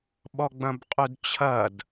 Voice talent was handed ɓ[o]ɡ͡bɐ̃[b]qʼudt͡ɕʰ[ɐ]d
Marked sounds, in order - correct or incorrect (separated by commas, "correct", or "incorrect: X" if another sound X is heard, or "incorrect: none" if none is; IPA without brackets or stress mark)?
incorrect: ɔ, correct, correct